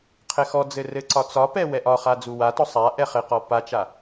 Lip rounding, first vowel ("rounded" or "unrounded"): unrounded